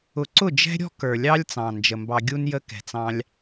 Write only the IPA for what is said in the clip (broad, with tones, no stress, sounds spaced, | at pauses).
ʊ˨ ǀ ʊ˦˨ d͡ʒ ɛ̤˦ ɾʲ ɔ̤˦ k ə˞˨ lʲ ɑ˦ lʲ t͡s ɑ̃˨ n d͡ʒ ə˨ m b ɑ˧ ɡʲ u˦ n j ə˦ k ɛ̤˨ t͡s ɑ̃˧ lʲ